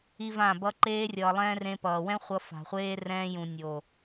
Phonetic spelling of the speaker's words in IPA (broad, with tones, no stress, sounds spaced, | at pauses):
i˦ v ã˦˨ b ʌ˧ ǃ eː˧ rʲ ʌː˨ lˠ ɛ̃ː˧ r ẽ˧ p ʌː˨ w ɛ̃˦ χʷ ʌ˧ f a̤˨ χʷ eː˧ r ɛ̃ː˧ j ũ˨ nʲ o˨